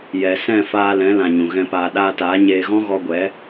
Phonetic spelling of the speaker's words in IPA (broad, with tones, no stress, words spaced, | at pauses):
jɛ˨sɛ̃˦˨ faː˧lɛ̃˨˦lã˨ ɲũ˨ɣɛ̃˧paː˧ ɗaː˧taː˨˦ ɲeː˧ ɣɔ̃˦ɣɔ˧ɡʷɛ˨˦